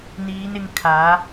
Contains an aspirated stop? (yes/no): yes